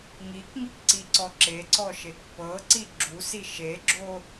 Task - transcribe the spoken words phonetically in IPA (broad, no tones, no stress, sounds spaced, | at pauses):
ŋ i k ŋ i k ǀ i ǀ ɔ ǁ e ǀ ɔ ʃ e k p ɤ ǀ i ɡ͡ǁ u s i ʃ e ɡ͡ǁ o